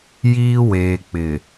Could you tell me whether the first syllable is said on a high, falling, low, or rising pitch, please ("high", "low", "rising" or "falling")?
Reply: high